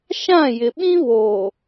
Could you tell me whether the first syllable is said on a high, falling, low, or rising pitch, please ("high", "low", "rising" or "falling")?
falling